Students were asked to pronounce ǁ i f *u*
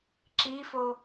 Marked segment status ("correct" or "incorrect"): incorrect